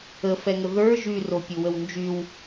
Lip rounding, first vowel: unrounded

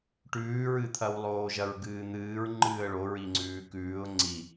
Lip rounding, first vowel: rounded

